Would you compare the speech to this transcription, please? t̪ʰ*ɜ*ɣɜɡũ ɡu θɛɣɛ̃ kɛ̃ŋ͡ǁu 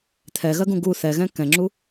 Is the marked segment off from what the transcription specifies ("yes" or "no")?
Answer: yes